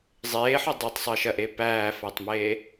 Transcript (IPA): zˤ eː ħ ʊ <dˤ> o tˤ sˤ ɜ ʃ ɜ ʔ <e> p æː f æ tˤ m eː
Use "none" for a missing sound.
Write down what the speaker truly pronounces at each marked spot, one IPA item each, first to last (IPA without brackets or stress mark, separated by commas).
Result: dˤ, e